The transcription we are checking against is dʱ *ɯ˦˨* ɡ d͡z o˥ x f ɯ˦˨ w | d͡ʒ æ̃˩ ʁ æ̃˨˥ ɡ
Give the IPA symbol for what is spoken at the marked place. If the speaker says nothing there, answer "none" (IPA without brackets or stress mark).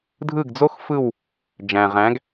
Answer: ɯ˦˨